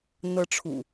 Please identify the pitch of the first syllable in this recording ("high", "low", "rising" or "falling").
high